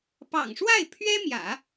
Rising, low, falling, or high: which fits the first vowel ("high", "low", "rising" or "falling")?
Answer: low